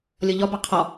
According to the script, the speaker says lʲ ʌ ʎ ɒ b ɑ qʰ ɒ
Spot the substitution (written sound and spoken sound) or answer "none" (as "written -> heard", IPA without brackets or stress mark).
none